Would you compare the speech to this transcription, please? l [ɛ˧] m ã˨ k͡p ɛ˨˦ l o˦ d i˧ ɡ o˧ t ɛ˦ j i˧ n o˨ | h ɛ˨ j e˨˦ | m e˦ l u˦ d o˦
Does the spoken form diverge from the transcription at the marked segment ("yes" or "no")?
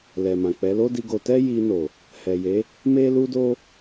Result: yes